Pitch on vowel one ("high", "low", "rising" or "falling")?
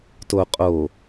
low